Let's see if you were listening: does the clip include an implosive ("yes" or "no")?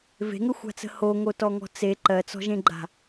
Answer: no